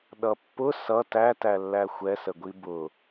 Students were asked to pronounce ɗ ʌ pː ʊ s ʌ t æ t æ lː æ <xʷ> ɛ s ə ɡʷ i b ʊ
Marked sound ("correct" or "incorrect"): correct